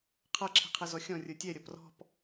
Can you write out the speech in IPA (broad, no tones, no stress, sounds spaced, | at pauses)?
qʰ ʌ ǁʰ i̤ qʰ ɛ z ɔ xʲ ɔ̃ rʲ ə˞ tʲ ɛ ɾʲ ʌ p r ɔ̤ p